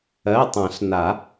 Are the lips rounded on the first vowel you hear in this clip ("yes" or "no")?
no